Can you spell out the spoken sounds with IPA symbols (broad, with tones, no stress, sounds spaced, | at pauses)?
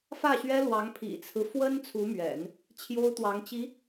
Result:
f ä˥˩ ɕ ɥ ɛ˥ l w ɑ˧˥ ŋ pʰ ḭ˨˩ t͡sʰ ɹ̩˦ f w ə˥ n t͡sʰ u˧˥ m ɥ ɛ̰˨˩˦ n | t͡ɕʰ j o˥ ʊ̯ t̪ w ɑ˧˥ ŋ t͡ɕ i˧˥